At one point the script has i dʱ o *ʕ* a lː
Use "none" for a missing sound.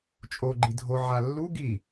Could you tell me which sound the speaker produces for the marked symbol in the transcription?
ʕ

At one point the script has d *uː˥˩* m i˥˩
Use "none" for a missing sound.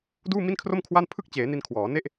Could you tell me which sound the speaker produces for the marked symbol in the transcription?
uː˥˩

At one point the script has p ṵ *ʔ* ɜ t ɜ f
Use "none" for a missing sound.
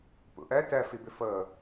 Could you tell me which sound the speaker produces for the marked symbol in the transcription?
ʔ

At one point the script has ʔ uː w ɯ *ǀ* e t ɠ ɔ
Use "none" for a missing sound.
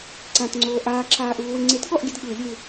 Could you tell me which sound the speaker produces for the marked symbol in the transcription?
ŋ͡ǀ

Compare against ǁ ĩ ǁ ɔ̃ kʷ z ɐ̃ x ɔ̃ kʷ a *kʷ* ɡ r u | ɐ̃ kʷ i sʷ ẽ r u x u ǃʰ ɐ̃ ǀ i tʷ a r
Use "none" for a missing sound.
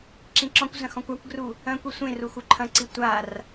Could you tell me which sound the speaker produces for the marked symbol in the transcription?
kʷ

